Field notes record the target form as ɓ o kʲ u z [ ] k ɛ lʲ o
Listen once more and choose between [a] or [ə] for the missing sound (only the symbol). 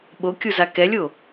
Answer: a